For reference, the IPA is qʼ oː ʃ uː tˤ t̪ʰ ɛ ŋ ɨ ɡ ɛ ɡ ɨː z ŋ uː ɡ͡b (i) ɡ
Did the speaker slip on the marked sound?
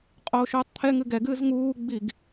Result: no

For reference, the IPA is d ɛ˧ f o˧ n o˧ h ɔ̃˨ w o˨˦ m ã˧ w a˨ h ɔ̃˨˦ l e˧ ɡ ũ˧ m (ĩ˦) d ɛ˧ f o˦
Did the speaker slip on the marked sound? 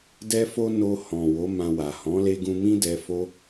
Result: no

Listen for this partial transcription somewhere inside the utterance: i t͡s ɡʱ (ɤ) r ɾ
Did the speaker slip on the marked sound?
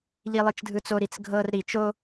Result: no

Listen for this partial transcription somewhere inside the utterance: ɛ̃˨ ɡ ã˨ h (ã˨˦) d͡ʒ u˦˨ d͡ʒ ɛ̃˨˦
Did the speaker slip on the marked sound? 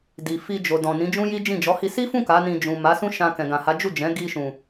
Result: yes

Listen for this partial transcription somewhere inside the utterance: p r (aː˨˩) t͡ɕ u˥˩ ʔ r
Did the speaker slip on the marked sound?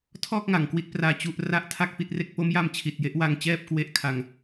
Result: yes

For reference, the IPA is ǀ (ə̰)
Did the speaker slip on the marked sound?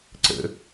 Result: no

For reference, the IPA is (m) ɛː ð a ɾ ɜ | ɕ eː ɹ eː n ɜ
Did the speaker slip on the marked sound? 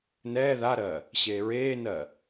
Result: yes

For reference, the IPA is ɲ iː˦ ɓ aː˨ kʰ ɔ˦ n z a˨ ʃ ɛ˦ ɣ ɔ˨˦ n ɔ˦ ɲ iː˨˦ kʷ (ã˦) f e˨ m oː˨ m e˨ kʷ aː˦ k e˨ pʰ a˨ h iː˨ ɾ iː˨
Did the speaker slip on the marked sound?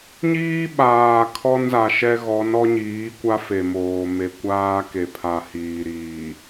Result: yes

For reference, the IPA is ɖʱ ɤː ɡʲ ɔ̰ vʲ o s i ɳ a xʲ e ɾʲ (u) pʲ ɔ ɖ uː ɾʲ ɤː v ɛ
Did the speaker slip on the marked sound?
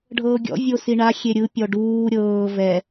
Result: yes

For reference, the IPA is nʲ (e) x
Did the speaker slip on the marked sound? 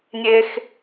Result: no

